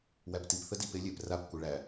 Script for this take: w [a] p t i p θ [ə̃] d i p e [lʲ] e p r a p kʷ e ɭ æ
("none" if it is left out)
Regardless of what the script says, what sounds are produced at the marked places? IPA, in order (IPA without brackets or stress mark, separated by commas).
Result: æ, ə, lʲ